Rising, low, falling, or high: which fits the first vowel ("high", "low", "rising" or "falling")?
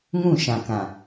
falling